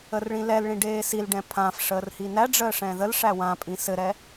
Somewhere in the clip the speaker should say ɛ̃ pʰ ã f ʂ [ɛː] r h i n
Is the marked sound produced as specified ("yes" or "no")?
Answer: no